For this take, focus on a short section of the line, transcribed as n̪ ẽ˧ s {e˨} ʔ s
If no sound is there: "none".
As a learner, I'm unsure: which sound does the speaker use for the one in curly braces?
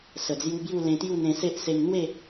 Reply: e˦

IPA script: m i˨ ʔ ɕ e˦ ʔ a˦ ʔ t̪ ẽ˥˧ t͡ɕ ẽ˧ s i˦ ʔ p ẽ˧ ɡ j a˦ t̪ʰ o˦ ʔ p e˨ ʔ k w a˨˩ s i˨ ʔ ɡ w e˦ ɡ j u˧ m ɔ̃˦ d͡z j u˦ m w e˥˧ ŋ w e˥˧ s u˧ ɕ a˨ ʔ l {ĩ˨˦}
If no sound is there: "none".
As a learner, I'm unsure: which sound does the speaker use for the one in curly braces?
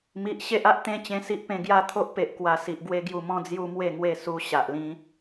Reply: ĩ˦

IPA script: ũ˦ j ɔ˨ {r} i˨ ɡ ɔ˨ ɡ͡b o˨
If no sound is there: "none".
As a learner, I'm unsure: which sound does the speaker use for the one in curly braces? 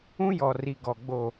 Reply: r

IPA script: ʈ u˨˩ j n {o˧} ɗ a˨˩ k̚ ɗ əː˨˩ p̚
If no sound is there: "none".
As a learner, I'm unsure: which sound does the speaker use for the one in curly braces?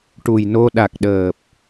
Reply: o˧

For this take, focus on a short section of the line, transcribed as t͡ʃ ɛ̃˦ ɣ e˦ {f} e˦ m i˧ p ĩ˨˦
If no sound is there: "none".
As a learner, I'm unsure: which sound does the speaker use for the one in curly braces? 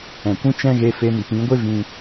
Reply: f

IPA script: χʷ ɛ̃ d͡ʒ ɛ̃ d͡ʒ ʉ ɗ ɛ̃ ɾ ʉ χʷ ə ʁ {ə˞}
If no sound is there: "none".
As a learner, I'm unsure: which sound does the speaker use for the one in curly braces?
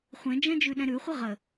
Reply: ə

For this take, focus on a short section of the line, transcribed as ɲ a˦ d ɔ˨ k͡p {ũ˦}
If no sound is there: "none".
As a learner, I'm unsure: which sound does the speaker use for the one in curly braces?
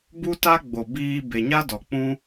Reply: ũ˦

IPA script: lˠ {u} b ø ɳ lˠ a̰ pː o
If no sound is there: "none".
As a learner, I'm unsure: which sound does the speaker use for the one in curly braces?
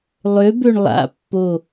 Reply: ø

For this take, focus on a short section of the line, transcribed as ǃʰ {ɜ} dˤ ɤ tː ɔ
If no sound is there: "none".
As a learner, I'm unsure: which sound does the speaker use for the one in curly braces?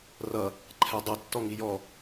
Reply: ɛ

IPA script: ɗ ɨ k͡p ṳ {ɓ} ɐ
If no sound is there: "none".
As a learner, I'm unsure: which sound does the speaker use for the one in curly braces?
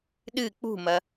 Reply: m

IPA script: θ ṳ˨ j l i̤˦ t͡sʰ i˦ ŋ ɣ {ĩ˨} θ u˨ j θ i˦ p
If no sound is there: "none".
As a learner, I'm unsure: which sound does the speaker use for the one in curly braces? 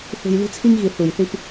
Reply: i˨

